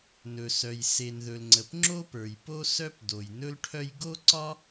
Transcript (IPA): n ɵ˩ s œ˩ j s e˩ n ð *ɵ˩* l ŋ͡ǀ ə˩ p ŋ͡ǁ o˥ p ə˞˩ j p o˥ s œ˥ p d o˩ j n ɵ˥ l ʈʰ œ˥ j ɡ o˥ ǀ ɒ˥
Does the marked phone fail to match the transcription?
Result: no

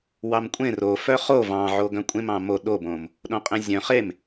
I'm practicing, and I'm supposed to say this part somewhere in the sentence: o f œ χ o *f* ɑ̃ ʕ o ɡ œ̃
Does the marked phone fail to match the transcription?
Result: yes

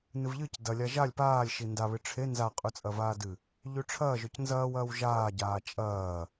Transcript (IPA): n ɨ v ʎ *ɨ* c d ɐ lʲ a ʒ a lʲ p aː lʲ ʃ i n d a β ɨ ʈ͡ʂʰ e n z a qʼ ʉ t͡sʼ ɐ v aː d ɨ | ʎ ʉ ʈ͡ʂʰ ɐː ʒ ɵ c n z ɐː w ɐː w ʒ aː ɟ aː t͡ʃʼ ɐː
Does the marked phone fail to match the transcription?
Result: no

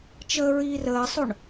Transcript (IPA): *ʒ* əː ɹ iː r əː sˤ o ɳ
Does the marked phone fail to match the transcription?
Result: yes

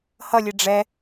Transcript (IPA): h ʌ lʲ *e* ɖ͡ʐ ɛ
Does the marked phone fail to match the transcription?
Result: no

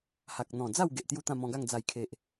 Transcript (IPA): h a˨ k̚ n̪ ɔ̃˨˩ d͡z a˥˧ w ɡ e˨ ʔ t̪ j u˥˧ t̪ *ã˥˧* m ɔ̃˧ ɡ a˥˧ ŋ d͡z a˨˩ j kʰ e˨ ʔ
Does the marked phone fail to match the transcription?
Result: no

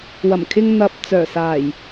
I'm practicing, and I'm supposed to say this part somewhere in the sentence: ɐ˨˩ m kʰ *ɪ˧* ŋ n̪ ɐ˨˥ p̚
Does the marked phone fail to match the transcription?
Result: no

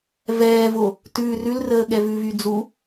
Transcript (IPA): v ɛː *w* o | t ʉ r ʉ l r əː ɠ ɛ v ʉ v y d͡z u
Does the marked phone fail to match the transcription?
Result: yes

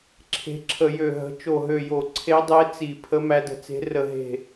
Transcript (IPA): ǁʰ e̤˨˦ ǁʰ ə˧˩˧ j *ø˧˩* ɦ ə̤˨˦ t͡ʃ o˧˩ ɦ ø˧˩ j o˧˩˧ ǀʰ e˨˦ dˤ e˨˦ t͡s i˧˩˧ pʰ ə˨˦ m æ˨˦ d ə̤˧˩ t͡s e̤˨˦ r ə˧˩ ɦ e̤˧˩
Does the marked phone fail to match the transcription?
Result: no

